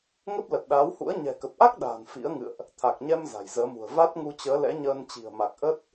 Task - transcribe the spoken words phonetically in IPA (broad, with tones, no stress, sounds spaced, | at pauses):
ŋ ə˦˥ p̚ l ə˨˩ t̚ ɗ aː˨˦ w h ṵ˧˥ ə̯ ɲ ɛ̤˨˩ k ə˨˩ p̚ ʔ a˦˥ k̚ ɗ a̤ː˨˩ n f ḭ˧˥ ə̯ ŋ ɨ̰˧˨ ə̯ ʔ | t̪ʰ a˨˩ k̚ ɲ ɛ˧ m z a̤˨˩ j z əː˨˦ m ṳ˨˩ ə̯ v a˦˥ t̚ ŋ u˧ t͡ɕ əː˨˦ l ɛ̰˧˥ ɲ əː˧ n t͡ɕ i̤˨˩ ə̯ m a˨˩ k̚ ʔ ə˦˥ t̚